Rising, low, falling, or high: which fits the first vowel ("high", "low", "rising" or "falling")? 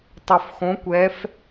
low